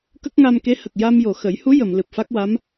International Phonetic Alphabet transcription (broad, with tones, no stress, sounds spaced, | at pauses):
k ə˦˥ k̚ ŋ a˧ m k e˧˥ h ə˨˩ k̚ j a˧ m j o˨˩ x ə˨˩˦ j h u˧˥ j ə˨˩˨ m l ɨ˨˩ p̚ f a˦˥ k̚ w a˧˥ m